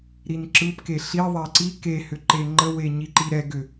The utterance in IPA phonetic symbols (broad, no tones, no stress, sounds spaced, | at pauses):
ɾ i n ǁ ɯ p k e ɬ i ðˤ e ǀ i k e h ʏ ǃ e ŋ͡ǃ ə w e ɲ i ǃ i ɾ ɛ ɡ ʏ